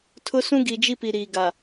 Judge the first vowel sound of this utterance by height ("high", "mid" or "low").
high